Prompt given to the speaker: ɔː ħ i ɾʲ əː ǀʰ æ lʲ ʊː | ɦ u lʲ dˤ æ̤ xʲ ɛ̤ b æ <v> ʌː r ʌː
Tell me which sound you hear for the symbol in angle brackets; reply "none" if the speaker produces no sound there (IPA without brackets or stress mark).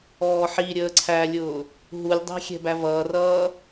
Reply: v